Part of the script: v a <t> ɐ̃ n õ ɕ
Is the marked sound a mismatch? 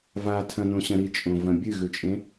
yes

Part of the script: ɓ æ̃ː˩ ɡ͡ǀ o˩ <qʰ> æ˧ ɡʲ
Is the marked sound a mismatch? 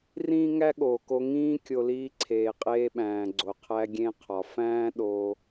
no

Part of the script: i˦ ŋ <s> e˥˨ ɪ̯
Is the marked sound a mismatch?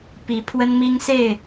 no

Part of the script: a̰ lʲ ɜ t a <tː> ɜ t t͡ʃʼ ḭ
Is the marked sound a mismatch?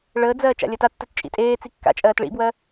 no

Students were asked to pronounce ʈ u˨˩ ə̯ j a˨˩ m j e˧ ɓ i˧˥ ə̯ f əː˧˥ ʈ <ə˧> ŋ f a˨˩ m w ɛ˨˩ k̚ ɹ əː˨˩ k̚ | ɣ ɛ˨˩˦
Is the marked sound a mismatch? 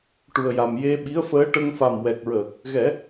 no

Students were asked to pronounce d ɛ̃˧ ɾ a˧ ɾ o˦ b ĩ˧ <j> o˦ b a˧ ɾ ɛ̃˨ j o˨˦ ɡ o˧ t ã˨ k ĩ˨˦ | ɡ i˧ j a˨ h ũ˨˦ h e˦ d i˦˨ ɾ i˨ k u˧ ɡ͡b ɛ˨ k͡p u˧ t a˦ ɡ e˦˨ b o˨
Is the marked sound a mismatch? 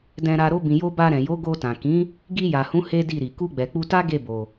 no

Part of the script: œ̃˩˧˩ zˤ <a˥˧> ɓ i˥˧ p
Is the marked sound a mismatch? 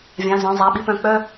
yes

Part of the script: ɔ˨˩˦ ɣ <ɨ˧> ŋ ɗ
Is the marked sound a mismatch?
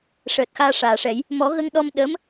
yes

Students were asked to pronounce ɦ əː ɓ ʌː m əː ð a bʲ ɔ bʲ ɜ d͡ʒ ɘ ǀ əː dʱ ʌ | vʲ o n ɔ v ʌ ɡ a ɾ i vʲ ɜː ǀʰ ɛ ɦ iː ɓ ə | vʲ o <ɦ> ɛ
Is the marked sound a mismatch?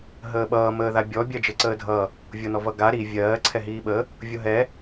no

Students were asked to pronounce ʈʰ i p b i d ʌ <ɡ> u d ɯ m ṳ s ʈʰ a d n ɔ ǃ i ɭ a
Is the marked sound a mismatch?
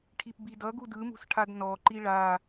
no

